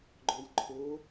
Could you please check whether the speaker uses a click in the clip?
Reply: yes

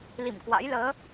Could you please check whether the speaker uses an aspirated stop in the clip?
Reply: no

